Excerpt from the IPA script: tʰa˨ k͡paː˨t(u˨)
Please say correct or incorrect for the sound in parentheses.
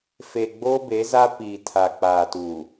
correct